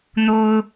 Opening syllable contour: high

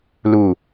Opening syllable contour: low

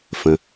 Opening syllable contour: low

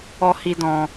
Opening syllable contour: low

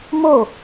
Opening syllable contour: falling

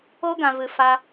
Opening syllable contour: high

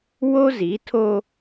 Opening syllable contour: high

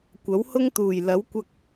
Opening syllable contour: rising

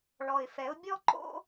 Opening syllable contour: low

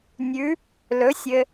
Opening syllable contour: rising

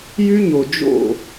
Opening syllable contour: high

